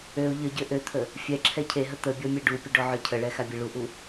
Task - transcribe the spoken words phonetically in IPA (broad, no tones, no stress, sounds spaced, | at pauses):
ø ʊ̯ ʎ ə ɟ ø ʔ ø t̪ʰ ə | fʲ ɛ ǁʰ ɛ cʰ e ɦ ə t̪ ə bʲ ɔ mʲ e ɖ u pʲ ə ɖ ɔ ʕ œ cʰ ə ɭ ɛ x a bʲ e ɭ u ʔ u